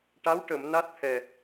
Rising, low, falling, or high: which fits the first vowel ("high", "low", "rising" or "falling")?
rising